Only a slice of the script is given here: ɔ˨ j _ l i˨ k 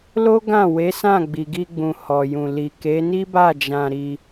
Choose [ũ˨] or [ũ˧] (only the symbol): ũ˨